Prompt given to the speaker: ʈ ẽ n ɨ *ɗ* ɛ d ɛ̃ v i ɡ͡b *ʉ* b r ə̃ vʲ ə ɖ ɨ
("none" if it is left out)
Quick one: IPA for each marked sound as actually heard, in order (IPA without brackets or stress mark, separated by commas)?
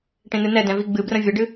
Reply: n, ɨ